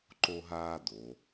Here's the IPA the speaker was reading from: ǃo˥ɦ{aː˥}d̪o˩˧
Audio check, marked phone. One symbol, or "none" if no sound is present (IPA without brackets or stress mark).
aː˥